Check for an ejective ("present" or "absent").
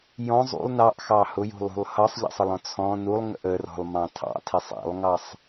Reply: absent